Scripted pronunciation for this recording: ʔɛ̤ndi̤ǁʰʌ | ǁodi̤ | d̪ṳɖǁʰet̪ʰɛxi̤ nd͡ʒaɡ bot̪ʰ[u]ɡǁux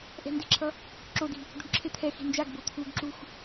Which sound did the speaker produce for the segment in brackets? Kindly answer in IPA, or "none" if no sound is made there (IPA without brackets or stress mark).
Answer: u